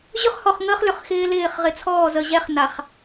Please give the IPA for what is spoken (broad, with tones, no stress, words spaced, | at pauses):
ʑʏ˦χhɔ˨χŋəː˦χlʏ˨χ xɪː˦lɪː˦˨χ ʁɪ˨t͡sʰɔː˦˨zə˨ʑɛ˦χ na˨χ